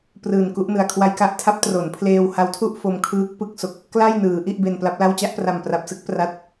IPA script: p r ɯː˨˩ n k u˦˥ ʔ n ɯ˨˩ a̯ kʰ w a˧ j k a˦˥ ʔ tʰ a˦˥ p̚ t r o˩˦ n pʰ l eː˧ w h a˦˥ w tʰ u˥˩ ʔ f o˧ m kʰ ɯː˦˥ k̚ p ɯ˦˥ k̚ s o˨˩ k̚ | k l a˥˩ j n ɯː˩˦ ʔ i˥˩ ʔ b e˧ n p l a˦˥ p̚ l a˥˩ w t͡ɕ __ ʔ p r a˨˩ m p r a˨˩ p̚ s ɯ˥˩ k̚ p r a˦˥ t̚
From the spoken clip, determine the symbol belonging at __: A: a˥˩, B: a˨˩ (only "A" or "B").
A